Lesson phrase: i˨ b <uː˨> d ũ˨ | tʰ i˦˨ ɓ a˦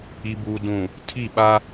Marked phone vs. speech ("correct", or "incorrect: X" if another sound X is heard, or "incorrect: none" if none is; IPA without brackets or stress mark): correct